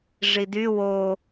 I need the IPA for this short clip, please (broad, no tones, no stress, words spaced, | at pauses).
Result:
ʐidy wo